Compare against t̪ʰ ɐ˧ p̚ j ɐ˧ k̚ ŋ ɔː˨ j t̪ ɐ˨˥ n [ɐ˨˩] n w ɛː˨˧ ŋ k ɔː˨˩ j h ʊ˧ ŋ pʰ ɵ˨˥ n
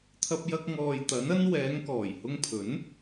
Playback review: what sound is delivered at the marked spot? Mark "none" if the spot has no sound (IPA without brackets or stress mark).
ɐ˥